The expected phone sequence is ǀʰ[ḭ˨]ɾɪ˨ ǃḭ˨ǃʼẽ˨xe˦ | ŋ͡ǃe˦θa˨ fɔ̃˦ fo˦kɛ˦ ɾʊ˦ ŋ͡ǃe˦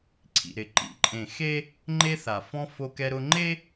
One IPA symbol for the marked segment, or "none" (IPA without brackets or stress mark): ḭ˨